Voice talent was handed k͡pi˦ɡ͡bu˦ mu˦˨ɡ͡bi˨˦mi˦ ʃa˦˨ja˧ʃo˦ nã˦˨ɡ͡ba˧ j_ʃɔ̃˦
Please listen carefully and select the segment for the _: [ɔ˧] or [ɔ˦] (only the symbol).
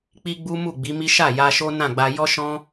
ɔ˦